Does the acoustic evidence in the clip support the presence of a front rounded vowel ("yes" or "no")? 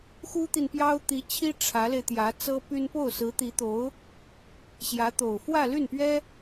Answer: yes